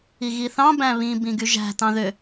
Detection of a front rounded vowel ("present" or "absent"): present